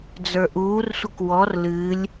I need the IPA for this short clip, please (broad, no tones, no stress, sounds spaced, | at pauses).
d͡z ə˞ ʔ uː r sʷ ə k w ɔ r l ɨ lʲ